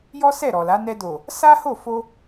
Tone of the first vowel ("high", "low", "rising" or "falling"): high